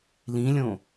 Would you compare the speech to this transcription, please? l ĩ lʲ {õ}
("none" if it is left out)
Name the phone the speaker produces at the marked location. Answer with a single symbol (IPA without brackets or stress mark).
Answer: õ